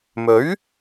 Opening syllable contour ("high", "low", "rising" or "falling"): rising